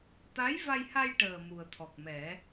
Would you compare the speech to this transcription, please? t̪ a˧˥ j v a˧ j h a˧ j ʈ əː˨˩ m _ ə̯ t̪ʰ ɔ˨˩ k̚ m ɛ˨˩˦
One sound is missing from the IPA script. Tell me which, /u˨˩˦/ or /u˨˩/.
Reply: u˨˩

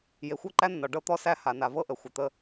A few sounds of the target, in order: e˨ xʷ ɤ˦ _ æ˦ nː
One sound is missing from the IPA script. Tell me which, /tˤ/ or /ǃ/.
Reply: ǃ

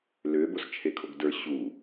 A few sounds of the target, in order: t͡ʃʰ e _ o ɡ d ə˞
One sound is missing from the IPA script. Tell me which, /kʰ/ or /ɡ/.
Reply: kʰ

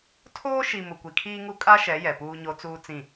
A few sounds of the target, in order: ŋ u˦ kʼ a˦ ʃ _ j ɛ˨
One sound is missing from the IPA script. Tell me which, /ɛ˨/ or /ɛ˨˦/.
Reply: ɛ˨˦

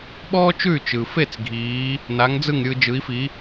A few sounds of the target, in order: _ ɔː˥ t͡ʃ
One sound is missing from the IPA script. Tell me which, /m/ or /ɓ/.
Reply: ɓ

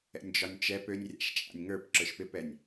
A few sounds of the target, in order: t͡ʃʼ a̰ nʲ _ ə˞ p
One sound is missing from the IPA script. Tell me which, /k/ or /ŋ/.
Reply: ŋ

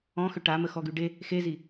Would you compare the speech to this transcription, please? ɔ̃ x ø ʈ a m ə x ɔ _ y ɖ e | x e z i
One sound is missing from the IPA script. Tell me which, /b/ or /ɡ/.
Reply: ɡ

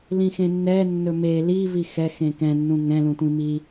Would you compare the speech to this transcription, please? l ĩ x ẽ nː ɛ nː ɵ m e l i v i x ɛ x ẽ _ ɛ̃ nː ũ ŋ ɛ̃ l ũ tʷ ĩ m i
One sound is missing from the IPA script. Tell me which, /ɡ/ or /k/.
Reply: k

